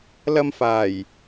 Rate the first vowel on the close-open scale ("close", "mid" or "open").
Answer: open